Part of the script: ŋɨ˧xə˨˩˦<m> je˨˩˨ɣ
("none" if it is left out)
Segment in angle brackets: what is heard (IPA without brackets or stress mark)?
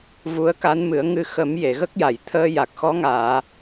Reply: m